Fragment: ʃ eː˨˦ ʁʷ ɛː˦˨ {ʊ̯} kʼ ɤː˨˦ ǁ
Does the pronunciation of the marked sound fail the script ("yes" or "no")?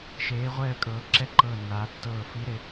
yes